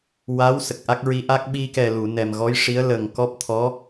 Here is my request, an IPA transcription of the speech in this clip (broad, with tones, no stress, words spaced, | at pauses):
wa˧˥w sə˨˩k̚ʔa˦˥k̚ɹi˧˥ʔa˦˥k̚ ɓi˧kɛ˨˩ lu˨˩˨nɛ˨˩mɣɔ˧˥jʂi˧˥ə̯ lə˨˩ŋkɔ˦˥p̚ t̪ʰɔ˧˥